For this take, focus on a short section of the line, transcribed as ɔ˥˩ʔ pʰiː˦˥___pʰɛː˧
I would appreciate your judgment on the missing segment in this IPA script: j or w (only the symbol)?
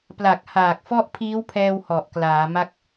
w